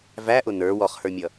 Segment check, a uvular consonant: present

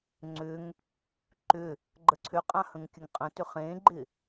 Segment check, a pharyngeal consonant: absent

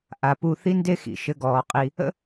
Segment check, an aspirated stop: absent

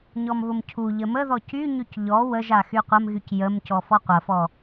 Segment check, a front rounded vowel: present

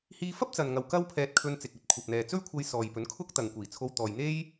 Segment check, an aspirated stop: present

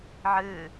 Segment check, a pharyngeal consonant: present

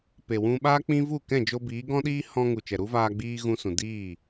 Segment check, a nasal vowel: present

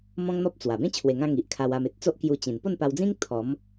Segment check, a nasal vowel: present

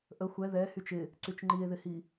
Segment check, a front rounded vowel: present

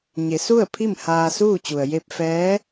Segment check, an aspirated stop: present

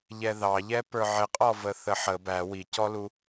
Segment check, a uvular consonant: present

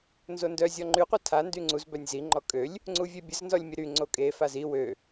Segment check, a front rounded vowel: present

